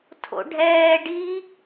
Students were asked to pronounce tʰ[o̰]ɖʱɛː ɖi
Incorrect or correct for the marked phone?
correct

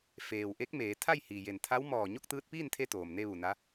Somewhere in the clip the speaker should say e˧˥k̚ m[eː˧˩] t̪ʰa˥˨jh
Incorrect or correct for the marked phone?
incorrect: eː˩˧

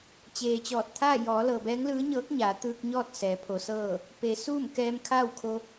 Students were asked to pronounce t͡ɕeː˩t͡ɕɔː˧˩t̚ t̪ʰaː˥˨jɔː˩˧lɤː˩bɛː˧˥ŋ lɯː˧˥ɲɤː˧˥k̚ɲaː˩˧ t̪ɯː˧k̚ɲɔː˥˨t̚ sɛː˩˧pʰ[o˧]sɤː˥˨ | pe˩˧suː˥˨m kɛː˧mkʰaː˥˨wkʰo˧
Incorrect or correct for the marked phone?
incorrect: o˩˧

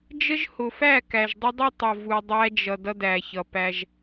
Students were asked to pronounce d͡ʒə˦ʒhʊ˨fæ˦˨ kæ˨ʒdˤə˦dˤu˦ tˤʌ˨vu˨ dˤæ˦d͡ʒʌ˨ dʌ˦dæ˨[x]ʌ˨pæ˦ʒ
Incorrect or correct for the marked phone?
incorrect: ç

